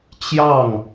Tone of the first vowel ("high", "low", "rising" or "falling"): falling